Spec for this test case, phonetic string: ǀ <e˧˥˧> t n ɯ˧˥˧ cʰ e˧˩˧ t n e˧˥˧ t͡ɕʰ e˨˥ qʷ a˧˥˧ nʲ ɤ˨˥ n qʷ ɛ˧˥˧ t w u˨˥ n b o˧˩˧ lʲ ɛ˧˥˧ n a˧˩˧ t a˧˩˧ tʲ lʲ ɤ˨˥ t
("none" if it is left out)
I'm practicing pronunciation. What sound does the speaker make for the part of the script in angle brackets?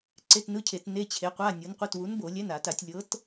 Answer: e˧˥˧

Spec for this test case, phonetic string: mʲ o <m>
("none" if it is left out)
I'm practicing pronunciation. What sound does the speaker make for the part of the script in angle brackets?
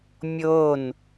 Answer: n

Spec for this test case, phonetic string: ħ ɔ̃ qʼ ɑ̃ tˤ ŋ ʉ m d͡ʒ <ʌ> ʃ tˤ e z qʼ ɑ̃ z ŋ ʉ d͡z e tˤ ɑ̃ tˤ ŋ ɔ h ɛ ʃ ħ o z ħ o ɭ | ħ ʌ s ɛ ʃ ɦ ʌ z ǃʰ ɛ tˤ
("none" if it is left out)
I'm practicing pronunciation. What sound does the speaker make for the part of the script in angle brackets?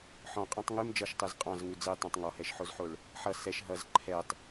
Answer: ʌ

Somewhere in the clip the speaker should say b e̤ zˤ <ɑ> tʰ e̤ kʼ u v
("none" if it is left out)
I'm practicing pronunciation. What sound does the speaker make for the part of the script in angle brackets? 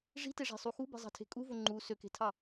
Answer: ɑ̤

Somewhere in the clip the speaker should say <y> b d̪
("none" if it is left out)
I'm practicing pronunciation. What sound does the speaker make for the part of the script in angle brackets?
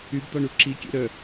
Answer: y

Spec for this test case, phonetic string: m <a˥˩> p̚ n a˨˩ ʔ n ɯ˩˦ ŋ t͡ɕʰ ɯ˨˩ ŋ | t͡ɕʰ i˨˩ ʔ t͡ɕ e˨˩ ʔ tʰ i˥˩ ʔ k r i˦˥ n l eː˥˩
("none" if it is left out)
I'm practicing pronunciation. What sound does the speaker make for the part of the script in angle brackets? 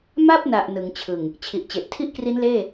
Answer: a˥˩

